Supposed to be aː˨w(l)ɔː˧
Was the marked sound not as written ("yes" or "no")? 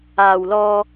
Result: no